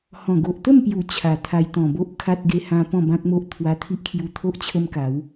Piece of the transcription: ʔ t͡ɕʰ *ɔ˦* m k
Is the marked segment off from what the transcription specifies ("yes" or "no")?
yes